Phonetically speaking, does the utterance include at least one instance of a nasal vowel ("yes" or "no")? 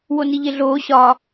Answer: no